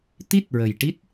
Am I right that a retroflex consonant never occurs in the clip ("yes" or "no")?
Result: no